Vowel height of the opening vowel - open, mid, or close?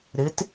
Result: close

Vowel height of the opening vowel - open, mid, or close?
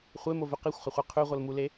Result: mid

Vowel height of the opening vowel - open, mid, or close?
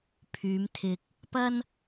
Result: close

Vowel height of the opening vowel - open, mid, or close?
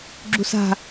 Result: close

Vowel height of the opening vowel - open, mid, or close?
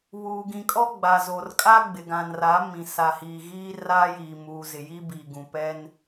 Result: close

